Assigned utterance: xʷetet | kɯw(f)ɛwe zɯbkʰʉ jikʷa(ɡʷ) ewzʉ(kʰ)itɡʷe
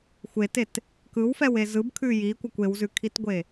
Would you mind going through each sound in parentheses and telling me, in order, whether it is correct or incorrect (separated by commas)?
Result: correct, incorrect, correct